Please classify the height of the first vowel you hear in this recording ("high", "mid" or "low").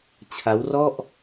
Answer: low